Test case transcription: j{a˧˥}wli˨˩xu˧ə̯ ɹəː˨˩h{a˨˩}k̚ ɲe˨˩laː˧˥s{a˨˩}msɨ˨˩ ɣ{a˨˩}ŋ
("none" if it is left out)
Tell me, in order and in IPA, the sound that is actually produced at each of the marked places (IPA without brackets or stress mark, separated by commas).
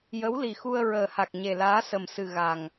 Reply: ə˧˥, a˨˩, ə˨˩, a˨˩